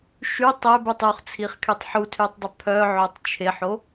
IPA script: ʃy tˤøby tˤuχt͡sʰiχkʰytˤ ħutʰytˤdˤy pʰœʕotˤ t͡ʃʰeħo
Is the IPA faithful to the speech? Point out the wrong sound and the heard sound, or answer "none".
none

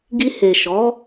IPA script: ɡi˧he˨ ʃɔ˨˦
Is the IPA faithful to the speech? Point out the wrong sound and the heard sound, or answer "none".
none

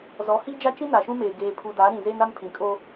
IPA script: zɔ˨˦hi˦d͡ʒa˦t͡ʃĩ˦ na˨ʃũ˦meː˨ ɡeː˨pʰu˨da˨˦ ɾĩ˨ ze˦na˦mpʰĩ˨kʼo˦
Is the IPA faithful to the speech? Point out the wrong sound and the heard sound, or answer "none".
none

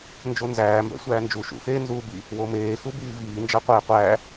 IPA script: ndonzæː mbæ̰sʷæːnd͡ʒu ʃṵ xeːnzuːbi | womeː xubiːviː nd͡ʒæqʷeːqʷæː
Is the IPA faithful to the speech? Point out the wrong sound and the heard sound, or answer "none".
d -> d͡ʒ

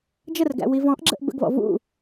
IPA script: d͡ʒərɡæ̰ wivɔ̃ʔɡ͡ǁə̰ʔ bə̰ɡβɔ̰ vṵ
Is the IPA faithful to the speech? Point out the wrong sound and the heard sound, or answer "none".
none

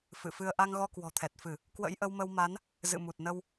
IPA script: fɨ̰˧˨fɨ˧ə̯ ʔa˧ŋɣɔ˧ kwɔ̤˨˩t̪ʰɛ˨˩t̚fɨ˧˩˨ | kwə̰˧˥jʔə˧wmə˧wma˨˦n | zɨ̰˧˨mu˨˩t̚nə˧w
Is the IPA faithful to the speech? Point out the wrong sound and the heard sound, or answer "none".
none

